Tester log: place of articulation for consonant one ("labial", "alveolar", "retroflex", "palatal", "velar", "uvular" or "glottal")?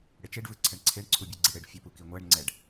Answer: retroflex